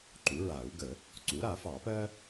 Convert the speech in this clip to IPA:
ǃ u˩˥ ɹ a˨˩˦ u̯ ɡ ə˨˩˦ | ǀ u˩˥ ɾ a˨˩˦ f ɑ˨˩˦ p ɜ˥

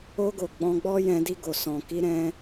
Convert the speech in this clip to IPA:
o˧ ɡ o˨ ɡ͡b ɔ̃˧ ɡ͡b ɔ˦ j ɛ̃˧ d i˧ ɡ o˨ s ɔ̃˨ k i˧ ɾ ɛ̃˦

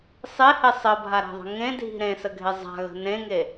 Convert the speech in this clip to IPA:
sˤ e h e sˤ ə bʱ a ɾ a̤ ðˤ ə̤ ŋ ẽ dʱ i̤ ɾ ẽ s ə ɡʱ e zˤ a̤ ɣ ə̤ n ẽ ŋ e

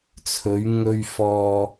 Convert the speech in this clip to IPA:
t͡sʰ ɵ˨˧ ɥ ŋ ɵ˧ ɥ f ɔː˧

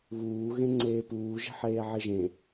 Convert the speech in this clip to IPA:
β uː ɣ ẽ ŋ͡ǀ eː p uː ʒ e̤ ħ eː ʕ e ʒ ẽ

